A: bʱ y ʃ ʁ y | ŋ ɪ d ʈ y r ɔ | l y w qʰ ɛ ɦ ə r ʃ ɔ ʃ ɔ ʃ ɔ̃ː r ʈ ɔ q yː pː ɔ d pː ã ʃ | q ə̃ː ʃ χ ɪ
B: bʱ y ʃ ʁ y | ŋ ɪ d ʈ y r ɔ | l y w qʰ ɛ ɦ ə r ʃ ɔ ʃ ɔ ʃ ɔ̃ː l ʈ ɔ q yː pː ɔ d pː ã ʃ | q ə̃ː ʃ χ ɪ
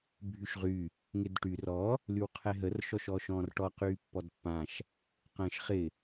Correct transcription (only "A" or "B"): A